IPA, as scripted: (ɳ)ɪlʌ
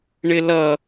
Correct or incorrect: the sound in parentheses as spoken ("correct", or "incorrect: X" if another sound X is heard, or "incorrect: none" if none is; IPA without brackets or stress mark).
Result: correct